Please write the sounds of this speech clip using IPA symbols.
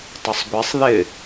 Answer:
tˤʊsˤɡʷɛsˤ ðɪ

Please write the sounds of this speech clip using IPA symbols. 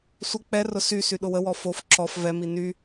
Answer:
sʷə k͡pɛrʊ sysy ɗʊwəwɔ fof ǁɔf vɛmi ny

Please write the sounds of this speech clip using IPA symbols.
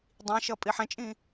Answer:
dˤĩʃʌ pʼiħɛ̃t͡ʃʼĩ

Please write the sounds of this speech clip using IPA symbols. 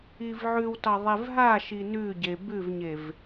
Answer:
ivʕʉwtɑ ðˤevɦaʃi nʉɟe bʉvɲev

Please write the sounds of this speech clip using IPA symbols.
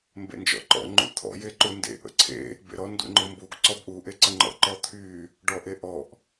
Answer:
mbḛnd͡ʒɔ̰ǃɔ̰ ŋ͡ǃṵt̪ʰɔ̰ jeǃundḛ ʔə̰ǀʰḛ | bḛɾɔ ndṵŋ͡ǃʊmbuɡ ǀɔbʔu ʔeǀəŋ͡ǃɔ̰ ǃɔt̪ʰy | ɖɔʔeʔɔʔ

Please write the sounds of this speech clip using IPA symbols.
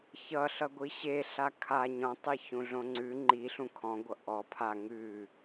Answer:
çʌɬʌɡʷi ɕeɬa kʰa ɲɔ̃tˤeçũɮõ ŋ͡ǀʉ ŋ͡ǃiɬũ kʰɔ̃ɡʷʌ ʔɔ pʰa ŋʉ

